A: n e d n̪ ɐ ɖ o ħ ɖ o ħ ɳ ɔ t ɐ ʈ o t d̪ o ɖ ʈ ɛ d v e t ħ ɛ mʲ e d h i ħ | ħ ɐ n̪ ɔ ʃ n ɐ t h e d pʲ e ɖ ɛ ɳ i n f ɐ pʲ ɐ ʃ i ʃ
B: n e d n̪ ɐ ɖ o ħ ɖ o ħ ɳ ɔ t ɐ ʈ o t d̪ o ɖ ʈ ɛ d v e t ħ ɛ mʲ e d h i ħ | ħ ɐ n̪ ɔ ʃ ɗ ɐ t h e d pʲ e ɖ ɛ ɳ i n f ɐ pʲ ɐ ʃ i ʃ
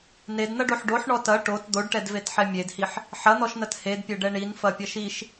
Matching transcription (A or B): A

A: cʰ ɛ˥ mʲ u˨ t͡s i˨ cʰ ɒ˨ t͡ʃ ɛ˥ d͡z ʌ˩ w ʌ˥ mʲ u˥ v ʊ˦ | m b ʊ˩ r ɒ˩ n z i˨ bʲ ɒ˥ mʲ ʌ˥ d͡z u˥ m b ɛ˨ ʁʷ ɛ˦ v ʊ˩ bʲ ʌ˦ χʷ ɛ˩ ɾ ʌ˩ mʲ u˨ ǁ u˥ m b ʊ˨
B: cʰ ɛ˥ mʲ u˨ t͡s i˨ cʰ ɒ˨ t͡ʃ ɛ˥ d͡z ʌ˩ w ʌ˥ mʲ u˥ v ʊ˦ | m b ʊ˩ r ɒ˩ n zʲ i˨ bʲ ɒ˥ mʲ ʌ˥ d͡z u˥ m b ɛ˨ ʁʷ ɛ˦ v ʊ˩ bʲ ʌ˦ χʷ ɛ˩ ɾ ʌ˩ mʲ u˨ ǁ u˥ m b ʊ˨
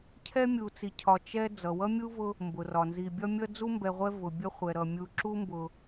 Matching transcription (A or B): A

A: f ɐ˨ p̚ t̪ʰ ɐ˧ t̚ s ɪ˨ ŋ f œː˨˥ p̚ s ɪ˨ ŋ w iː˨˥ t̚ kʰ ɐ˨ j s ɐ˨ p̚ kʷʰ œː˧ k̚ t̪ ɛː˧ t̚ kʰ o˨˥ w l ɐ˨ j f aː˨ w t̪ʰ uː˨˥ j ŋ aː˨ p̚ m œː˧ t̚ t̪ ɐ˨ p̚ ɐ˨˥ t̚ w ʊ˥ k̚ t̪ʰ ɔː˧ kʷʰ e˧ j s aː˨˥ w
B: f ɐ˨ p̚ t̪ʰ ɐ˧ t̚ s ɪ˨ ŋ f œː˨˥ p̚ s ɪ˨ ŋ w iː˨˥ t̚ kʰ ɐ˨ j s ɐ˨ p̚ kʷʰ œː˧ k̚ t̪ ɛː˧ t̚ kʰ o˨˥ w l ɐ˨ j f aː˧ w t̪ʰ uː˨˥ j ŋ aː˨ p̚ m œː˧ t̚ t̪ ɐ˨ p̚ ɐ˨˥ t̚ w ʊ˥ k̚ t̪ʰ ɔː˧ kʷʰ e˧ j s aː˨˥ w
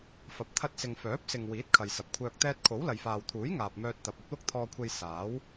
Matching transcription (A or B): A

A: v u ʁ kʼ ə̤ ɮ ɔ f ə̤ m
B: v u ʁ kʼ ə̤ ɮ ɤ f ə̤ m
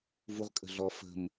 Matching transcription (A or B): A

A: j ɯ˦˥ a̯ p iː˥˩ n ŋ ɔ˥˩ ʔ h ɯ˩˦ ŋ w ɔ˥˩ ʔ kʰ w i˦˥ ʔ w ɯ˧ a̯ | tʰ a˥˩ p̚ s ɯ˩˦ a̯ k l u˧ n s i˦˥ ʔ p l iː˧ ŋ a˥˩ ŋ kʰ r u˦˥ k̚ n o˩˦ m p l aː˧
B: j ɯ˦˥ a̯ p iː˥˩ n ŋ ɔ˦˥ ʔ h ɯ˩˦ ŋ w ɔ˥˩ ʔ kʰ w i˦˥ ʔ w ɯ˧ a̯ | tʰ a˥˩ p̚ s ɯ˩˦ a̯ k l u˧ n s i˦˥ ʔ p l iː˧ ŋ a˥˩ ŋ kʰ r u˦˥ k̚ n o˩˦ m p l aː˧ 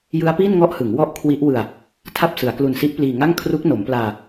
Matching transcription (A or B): A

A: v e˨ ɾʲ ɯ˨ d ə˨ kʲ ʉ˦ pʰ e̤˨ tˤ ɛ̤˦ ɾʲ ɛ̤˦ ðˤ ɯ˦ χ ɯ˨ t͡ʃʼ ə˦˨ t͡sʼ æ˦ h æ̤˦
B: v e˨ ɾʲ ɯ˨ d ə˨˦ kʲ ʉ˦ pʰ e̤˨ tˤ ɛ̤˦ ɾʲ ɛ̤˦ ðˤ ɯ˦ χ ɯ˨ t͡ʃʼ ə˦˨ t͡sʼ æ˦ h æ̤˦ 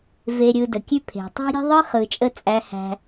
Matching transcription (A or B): A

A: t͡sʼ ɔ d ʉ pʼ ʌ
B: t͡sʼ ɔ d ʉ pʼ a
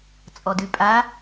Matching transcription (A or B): B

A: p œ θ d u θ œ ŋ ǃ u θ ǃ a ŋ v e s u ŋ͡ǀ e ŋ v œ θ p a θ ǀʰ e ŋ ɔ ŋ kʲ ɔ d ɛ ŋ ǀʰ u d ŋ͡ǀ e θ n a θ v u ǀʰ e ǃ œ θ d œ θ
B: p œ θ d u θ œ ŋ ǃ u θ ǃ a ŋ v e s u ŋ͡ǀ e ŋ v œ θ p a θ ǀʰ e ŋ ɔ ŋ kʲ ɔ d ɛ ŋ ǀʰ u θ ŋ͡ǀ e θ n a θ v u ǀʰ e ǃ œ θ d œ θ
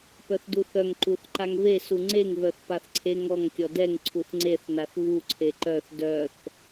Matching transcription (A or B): B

